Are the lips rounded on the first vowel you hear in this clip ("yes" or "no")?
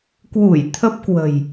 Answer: yes